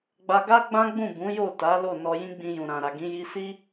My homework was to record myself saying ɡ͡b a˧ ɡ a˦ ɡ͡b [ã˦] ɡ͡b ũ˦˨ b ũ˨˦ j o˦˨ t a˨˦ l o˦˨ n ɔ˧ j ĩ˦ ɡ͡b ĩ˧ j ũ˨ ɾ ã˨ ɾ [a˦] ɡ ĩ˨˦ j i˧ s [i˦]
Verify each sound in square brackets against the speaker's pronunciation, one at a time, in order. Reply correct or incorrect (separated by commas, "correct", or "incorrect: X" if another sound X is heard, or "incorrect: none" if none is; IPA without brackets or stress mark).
correct, incorrect: a˨, correct